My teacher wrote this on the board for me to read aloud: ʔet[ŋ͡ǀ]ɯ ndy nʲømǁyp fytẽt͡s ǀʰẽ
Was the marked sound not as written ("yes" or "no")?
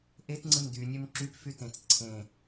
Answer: no